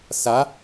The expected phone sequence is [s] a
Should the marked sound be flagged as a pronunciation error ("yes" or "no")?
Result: no